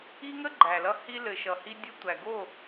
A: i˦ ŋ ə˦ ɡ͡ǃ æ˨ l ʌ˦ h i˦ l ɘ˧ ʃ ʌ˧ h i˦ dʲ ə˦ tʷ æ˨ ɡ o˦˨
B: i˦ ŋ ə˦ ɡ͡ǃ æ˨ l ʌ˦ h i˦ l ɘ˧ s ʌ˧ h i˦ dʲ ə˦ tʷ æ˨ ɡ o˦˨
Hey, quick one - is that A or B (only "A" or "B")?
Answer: A